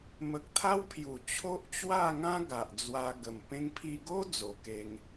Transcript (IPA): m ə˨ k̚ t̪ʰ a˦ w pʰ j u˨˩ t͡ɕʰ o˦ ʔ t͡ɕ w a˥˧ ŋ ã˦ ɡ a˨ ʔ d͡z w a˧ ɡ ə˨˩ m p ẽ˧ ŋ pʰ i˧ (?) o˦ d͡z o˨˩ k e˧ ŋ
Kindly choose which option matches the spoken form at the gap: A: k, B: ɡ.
B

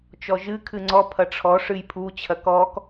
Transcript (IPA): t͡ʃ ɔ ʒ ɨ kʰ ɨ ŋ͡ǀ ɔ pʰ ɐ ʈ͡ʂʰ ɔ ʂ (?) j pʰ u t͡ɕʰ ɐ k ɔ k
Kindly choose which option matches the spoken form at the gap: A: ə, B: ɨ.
B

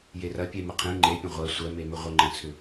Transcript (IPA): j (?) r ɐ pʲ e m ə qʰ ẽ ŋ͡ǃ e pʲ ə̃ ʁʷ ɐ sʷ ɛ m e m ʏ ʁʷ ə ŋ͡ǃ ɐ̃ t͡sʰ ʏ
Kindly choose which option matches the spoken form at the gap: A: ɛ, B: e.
B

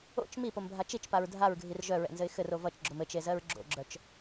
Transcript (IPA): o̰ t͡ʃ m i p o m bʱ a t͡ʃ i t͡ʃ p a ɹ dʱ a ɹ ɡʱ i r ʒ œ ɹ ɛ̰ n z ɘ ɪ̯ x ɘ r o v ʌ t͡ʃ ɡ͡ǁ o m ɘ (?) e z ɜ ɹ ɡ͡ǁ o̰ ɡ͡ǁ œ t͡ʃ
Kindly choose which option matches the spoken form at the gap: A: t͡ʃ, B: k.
A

